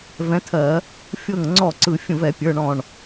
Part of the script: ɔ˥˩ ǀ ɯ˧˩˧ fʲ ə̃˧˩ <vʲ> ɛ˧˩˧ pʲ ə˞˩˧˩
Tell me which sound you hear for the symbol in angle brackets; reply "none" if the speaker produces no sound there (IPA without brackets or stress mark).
v